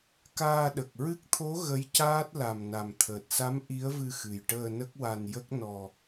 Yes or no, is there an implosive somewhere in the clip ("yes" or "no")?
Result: yes